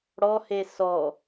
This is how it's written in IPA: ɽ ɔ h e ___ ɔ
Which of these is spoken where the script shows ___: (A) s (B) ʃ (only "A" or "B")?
A